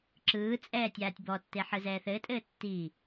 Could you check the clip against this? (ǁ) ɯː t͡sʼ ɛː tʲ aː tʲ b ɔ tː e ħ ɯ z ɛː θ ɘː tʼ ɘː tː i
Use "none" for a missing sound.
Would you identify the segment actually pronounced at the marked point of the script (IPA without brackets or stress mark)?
ǁ